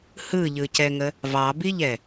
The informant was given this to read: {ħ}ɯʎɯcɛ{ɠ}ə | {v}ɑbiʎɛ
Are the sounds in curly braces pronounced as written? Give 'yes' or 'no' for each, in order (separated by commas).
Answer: no, no, yes